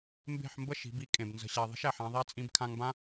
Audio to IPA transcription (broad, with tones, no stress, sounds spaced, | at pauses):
m b e̤˦˨ ħ m b ə˦ ʃ i̤˨˦ b i˦ kʼ ẽ˨ b n z ə̤˨ ɕ æ˨ ðˤ ə̤˦ ʃ æ˨ ħ ã˧ ðˤ æ˦ t͡sʼ ĩ˧ b kʰ ã˧ ŋ b ã˦